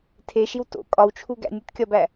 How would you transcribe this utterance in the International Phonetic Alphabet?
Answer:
tʰeʃiw to̰ kʼɒwt͡ʃʰu ɡæ̰nʲutkʲɒbæ

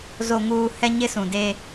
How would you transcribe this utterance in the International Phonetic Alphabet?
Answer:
zo˨ŋuː˨ hɛ˦ɲɪ˦sũ˨de˦

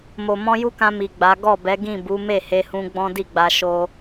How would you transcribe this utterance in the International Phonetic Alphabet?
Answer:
mo˨mɔ̃˧ju˦kã˧ mi˨ɡ͡ba˨˦ ɡɔ˦˨bɛ˨˦ɡĩ˦˨ bu˨˦ me˦˨he˧hũ˧ ɡ͡bɔ̃˦di˦˨ɡ͡ba˧ ʃo˧

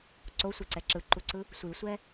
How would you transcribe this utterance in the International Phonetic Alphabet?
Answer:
ǀosʷiǀɛ ǁɯǃuǀɯ | sʷisʷɛ

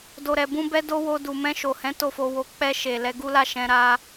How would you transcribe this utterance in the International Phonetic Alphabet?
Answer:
do˨ɾɛ˨bũ˧bɛ˧ do˦wo˧ du˨mɛ̃˧ʃo˨hɛ̃˨˦ to˦˨fo˧wo˧ k͡pɛ˧ ʃe˨ lɛ˨˦ɡu˦la˦˨ ʃɛ̃˧ ɾa˧

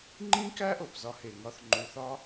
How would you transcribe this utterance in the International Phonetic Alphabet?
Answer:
ŋ͡ǃĩ˦kæ˦ ʔo˨pzɒ˦he˨ŋɒ˦θ ŋ͡ǃu˨θɒ˦

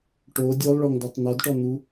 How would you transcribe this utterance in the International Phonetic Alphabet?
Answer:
ʈo dʲolˠɭɔŋdɔtˤ n̪ɔdʈɔn̪u

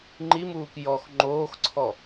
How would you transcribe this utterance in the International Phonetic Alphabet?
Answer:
ŋ͡ǃimuːk jɔx ŋ͡ǃoːxǀʰɔ

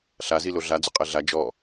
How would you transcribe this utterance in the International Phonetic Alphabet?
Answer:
ɬazilo ɮad͡zʊ qʼɛɮa d͡ʒɔ

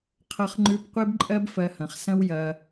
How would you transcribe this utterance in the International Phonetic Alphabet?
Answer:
qʰʌ˧χŋ͡ǃʉ˧p qʷe˦bǃʼɜ˦b fɜ˧hɐ̃˨χ sɐ̃˦w jɐ˧

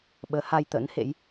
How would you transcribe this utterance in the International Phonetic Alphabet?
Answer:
ɓəː˨˦ha˧jt̪ə̰˧˥nhḛ˧˥j

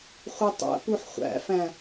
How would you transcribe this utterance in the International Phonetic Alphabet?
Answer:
χʷetˤæ̰puħ χʷæ̰fæ̃

